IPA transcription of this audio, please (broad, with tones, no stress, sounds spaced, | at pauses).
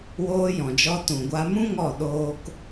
w oː˧ j ɔ̃˨ d͡ʒ ɔ˧ t ũ˨ ɡʷ a˧ m ũ˦ ŋ ɔ˦˨ ɗ oː˦ k